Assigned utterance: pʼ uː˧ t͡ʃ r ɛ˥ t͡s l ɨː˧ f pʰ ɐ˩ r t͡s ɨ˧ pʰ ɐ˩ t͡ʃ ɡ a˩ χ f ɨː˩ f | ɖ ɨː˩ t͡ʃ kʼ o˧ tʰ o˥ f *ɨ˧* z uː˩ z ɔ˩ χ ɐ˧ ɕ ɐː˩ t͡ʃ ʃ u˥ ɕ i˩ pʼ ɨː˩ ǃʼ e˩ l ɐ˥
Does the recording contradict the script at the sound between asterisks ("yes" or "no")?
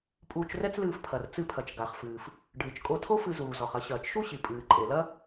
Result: no